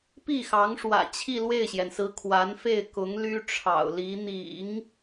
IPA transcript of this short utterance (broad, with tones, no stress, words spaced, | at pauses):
pi˥˩xɑ˧˥ŋ ʂwä̰˨˩t͡ɕʰi˥˧ lwe˥˩ɪ̯ɕjɛ˩nsɹ̩˧˥ kʰwa˧˥nfe˥˩ɪ̯kʊ˧˥ŋ ly˥ʈ͡ʂʰɑ̰˨˩ʊ̯li˧˥ n̪ḭ˨˩˦ŋ